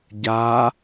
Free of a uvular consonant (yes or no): yes